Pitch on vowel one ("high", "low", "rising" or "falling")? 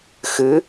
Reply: rising